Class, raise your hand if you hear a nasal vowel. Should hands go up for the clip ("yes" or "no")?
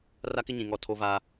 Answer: yes